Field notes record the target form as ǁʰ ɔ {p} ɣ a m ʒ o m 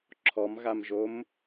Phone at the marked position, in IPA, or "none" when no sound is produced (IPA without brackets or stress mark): m